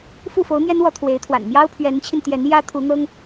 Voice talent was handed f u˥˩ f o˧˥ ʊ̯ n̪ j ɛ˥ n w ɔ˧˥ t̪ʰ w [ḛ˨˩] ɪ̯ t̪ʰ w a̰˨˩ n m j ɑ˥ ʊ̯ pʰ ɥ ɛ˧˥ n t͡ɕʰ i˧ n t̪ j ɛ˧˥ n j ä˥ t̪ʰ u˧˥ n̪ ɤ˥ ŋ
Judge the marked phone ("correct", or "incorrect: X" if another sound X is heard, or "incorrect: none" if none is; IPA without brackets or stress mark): incorrect: e˧˥